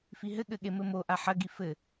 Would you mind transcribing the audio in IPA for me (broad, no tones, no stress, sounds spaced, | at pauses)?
f i ɦ ɘ ɠ ɘ ɠ e m ɘ m o ʔ a ħ ɐ ɡ i f ɘ